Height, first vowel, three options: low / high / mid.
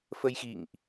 mid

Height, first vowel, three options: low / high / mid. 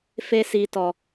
mid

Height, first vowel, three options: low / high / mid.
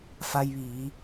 low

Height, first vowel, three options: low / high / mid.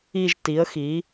high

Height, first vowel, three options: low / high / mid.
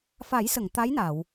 low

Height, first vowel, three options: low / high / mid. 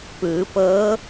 high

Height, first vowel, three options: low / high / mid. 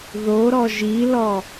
mid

